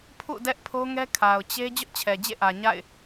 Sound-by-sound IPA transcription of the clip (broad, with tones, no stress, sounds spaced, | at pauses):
pʰ ṵ˦˨ d ɛ˦ ʔ pʰ o˦ ŋ ɛ˦ kʰ a˨ ʊ̯ t͡ɕ e˦ d͡ʑ ʊ˦ ʔ t͡ɕʰ ɛ˨ d͡ʑ ḛ˦˨ ʔ ä˨ ɲ a̰˦˨ ɪ̯